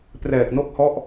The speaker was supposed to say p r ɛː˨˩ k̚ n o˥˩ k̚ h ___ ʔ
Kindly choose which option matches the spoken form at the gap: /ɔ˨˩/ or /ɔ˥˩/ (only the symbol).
ɔ˥˩